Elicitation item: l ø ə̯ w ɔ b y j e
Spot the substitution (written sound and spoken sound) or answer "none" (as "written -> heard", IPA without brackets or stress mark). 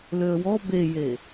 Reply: y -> e